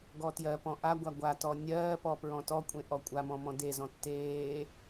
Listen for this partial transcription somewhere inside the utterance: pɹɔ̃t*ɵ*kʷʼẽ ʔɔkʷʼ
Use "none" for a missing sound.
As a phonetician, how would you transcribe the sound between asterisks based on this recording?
ɔ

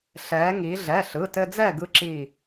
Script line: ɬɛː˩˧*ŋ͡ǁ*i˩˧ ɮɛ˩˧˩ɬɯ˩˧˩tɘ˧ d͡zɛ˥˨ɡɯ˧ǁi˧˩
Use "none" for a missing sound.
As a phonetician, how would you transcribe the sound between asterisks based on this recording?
ŋ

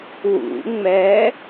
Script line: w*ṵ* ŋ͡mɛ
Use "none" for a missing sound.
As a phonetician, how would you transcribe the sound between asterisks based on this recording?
ṵ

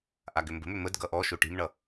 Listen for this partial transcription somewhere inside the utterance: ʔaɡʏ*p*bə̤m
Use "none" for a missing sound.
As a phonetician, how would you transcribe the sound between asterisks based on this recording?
m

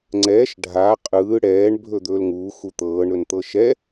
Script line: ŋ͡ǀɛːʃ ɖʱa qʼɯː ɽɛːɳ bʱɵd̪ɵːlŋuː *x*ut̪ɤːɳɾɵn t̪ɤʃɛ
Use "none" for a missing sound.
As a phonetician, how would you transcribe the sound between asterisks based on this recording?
x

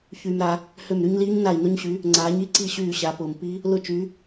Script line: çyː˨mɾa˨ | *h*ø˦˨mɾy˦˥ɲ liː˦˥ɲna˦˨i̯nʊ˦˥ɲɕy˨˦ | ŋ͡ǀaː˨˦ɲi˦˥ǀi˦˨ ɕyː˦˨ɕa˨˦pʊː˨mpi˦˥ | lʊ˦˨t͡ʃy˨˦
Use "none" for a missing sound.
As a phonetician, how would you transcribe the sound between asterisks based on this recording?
h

